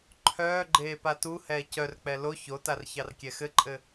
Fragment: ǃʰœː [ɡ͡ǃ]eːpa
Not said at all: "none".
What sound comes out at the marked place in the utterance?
ɡ͡ǃ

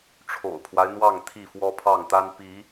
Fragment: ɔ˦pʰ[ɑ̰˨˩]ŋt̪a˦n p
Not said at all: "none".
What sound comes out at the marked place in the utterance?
ɑ˥˨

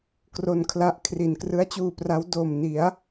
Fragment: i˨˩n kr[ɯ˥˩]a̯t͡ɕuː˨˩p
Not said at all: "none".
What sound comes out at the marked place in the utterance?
ɯ˦˥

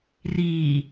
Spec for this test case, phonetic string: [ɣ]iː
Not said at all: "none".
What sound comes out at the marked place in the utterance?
r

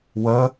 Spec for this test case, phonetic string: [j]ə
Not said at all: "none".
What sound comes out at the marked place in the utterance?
w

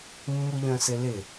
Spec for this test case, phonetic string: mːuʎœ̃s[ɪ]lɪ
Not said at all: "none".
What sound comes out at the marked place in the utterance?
ɪ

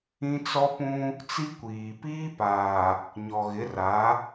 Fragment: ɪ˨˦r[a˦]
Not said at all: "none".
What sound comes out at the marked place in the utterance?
a˨˦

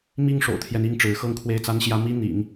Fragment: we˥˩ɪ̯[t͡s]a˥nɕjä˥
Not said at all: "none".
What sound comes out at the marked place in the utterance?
t͡s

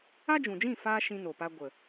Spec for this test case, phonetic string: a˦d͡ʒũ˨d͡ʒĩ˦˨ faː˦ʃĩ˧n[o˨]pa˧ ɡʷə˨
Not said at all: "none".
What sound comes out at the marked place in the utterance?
o˨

